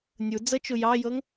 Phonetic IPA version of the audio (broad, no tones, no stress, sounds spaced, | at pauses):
nʲ u d͡z ə t͡ʃ u j ɑ j ɤ ŋ